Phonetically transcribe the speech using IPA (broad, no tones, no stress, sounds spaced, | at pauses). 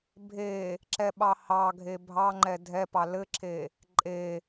bʱ e | ǁ ɛ ɓ ɑ h ɑ ɡʱ e bʱ ɑ ŋ͡ǃ ɛ dʱ ɛ p ɑ l ɘ ǁʰ e | ǃʼ e